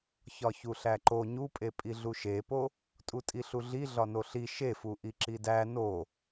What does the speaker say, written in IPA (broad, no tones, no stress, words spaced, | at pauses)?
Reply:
çɒçuɬæǃo ɲupʼe pʼiɮuʃepo | tʼutʼiɬuɮi ɮɒnoɬi ʃefu ʔiǁidæ no